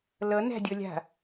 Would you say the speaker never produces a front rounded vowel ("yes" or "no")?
yes